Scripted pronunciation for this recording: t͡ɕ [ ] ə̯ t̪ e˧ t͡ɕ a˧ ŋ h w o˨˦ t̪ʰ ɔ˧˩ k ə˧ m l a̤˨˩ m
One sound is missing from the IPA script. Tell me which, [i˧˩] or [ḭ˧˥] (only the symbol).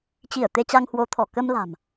i˧˩